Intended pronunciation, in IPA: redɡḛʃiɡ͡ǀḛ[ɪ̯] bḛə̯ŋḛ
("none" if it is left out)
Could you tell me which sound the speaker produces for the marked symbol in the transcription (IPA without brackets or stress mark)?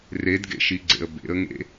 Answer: ə̯